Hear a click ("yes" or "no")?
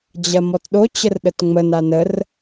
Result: no